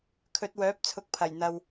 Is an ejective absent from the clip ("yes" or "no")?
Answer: yes